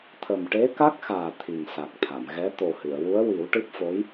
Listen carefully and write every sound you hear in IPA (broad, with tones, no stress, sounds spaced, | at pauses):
t̪ʰ ə˨˩ m ʈ e˧˥ k a˦˥ k̚ x aː˨˩ t̪ʰ i˨˩ ŋ s a˨˩ k̚ t̪ʰ a˨˩˨ m ɣ ɛ˧˥ t̪ o˨˩ h ɨ˨˩˨ ə̯ w u˧˥ ə̯ w i˨˩˦ w ʈ ɨ˦˥ p̚ f o˧˥ j